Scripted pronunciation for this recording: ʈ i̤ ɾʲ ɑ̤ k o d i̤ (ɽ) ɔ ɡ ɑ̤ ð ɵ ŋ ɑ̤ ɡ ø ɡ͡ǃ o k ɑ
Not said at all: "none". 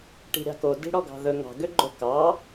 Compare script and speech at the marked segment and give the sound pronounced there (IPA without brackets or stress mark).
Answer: ɽ